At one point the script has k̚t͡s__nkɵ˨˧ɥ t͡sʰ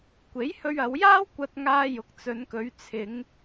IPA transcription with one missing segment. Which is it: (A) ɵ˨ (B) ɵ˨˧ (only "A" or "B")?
B